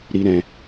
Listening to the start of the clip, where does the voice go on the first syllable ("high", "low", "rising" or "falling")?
high